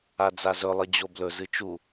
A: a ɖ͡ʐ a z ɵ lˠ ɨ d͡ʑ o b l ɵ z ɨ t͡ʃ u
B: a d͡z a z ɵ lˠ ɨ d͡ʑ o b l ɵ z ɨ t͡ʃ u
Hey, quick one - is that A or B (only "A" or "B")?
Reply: B